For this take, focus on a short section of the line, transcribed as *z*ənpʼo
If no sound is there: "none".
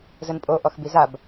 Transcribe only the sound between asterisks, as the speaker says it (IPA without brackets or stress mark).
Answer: z